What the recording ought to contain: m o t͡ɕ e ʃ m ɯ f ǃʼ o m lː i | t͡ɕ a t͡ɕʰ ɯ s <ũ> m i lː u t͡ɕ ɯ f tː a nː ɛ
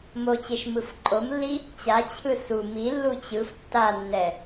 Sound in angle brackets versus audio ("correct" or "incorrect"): incorrect